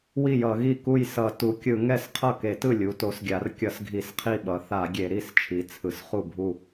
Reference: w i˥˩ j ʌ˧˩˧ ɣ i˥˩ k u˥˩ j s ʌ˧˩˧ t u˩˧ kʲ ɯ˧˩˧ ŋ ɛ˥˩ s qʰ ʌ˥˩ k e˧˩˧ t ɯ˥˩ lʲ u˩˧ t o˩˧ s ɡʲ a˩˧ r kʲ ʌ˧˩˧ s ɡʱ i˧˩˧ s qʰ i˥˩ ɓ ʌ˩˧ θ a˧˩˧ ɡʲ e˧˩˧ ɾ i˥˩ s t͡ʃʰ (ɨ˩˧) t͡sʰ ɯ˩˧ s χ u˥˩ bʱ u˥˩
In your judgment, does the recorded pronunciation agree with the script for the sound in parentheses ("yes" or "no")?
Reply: no